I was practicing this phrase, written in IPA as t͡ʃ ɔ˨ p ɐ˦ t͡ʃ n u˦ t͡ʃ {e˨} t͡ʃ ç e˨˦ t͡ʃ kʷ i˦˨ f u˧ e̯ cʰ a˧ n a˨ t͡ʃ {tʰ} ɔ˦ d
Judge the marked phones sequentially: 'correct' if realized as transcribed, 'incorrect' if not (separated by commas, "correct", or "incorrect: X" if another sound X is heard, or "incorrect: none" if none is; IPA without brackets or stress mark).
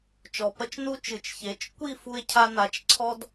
incorrect: ɨ˨, incorrect: ǀʰ